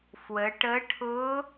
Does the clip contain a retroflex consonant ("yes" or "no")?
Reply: yes